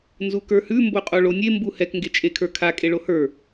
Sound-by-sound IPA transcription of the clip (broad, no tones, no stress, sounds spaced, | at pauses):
n z u k ə˞ h ʉ m b o qʼ o ɭ o nʲ e m b u h ɛ k ŋ ɡ e t͡ʃʼ e kʰ ə˞ kʰ a kʼ e ɭ o h ə˞